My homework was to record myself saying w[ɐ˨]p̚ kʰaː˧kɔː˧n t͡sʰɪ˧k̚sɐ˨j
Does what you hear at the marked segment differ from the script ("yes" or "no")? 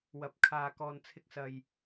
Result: no